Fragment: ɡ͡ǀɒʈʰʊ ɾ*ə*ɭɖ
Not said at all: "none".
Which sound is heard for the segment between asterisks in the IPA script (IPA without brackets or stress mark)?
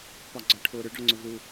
ʏ